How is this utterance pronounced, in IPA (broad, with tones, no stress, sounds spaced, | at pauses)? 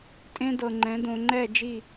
tʼ ẽ˦ d ɤ˨ ŋ͡ǃ ɛ̃˨˦ d õ˨ ŋ͡ǃ ɛ˦˨ d͡ʒ i˦˨